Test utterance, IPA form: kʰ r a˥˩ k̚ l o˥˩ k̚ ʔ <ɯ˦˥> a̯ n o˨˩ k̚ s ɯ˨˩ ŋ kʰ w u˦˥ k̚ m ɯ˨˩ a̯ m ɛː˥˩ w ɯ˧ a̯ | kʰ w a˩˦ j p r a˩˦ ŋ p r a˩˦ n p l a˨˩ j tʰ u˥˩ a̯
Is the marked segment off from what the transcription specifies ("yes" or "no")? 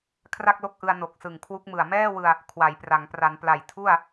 yes